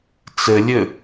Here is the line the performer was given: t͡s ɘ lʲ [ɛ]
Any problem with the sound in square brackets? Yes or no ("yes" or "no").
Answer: yes